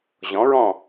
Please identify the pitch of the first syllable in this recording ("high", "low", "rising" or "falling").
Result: rising